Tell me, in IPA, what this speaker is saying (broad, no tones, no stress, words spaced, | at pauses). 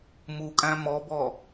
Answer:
mukʼæ̃ mɔbɔ